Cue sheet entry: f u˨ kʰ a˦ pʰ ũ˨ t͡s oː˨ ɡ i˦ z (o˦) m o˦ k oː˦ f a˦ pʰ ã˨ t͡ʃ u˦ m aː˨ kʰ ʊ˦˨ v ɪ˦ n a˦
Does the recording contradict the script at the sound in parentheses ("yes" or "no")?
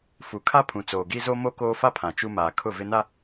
no